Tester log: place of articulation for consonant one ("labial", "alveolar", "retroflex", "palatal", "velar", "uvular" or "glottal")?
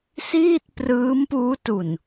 alveolar